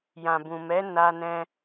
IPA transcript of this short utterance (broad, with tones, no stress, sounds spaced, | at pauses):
j ã˨ b ũ˨ m ɛ˨˦ n a˧ n ɛ̃˧